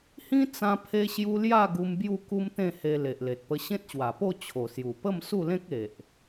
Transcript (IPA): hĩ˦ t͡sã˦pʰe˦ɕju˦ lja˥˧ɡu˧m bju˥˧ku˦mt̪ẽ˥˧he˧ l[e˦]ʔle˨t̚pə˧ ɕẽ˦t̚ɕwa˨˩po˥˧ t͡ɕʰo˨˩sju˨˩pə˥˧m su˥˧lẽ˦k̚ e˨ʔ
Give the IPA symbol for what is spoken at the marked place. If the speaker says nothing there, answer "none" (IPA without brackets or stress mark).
e˨